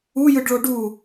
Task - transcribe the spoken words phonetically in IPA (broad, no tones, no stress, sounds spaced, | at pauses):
u j ɯ ɖ ɭ o ɖ u